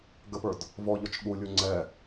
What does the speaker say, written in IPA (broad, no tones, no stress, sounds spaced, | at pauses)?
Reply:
ɡ ə p ə˞ d | v ɔ ʎ ɔ t͡ʃ ɠ u lʲ u ŋ͡ǀ ɛ